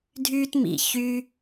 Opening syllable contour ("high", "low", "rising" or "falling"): high